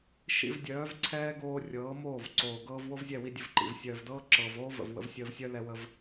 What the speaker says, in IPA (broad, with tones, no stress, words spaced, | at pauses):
ʃḭ˧vdʲœː˨˦v ǀʰɛː˦ɡoː˧ rʲɤː˨˦moː˦˨vǀoː˨ ɡɤː˧vwo˦vzʲɛ˦˨wi˧ dʲə˧vǃḭ˨v sʲœː˨vdɤː˦ǁɤː˨v oː˦və̰˨vwə̰˧v sʲəː˧vsʲœ˦ lɛ˧wə˧v